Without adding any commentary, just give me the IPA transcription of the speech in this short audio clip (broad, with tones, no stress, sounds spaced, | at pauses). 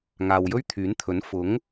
ŋ aː˨ w j ɵ˥ ɥ t̪ʰ yː˨˥ n t̪ʰ ɵ˨˥ n f ʊ˨˥ ŋ